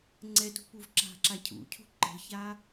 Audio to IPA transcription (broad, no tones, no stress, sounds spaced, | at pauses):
ŋ͡ǀ ɛ t ṳ p u v ǁ a̤ ǁ a cʰ ṵ cʰ ṳ ǃ ə̤ ç a